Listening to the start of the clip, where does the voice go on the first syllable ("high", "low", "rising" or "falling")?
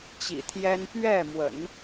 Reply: low